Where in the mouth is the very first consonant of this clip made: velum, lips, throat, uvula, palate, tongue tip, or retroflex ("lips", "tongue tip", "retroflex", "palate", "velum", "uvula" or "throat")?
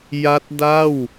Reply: palate